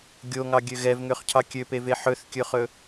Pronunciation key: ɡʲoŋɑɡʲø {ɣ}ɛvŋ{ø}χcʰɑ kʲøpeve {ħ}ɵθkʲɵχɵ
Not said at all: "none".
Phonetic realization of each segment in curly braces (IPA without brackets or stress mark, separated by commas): ɣ, ø, ħ